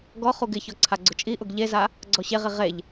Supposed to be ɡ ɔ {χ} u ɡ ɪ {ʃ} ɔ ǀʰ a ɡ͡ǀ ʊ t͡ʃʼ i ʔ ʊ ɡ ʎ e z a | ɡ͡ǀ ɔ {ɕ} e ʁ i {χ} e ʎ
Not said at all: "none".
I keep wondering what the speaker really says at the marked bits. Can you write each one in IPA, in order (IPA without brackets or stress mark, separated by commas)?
χ, ç, ɕ, ʁ